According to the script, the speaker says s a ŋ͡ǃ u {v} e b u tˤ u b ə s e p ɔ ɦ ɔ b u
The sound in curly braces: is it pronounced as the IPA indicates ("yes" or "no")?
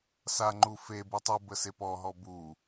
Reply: no